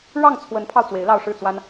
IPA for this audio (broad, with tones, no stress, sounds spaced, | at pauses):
ɻ ɑ˥˩ ŋ t͡sʰ w ə˧˥ n pʰ ɑ˧ ʊ̯ t͡s w e˧˥ ɪ̯ l ɑ˥˧ ʊ̯ ʂ ɻ̩˥˩ t͡s w a˥ n